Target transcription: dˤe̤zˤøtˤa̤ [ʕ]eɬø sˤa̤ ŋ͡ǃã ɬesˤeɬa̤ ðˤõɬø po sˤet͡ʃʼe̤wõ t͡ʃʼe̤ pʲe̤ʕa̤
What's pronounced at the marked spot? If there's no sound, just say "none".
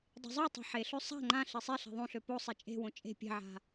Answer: ħ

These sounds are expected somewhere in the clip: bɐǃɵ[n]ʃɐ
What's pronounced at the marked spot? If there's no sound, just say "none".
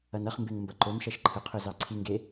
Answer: m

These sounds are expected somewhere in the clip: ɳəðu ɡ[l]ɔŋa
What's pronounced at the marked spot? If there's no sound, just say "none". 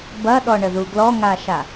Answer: l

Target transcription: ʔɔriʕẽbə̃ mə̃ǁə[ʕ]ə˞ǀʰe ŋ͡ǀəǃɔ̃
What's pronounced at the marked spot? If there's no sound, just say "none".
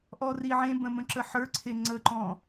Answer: ħ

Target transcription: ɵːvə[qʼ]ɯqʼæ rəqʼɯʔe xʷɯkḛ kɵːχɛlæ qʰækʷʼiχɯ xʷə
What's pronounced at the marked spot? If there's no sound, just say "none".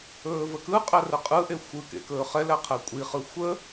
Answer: k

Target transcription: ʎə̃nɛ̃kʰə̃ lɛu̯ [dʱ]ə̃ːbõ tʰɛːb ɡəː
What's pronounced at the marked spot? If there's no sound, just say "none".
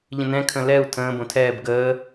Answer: tʰ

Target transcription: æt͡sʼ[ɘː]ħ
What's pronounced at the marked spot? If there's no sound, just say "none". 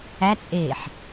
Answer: eː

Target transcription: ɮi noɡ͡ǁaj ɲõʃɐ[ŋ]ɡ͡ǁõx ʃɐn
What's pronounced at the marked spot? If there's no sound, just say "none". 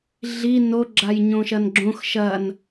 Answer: n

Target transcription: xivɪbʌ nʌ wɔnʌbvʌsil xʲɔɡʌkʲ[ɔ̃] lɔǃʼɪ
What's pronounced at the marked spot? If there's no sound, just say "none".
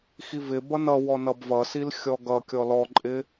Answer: ɔ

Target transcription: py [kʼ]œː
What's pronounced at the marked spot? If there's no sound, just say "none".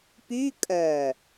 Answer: kʼ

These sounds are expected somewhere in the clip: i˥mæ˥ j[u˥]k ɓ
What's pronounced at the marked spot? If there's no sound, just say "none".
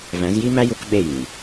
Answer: u˥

